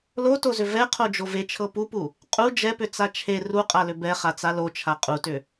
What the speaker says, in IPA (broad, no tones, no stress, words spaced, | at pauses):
lotozʏ vɛqʰod͡ʒo vet͡ʃʰɤ pupu | qʼu d͡ʒɛpʏt͡sa t͡ʃʰe ruqʼalʏ bɛχat͡sa lot͡ʃʰa qʼutʏ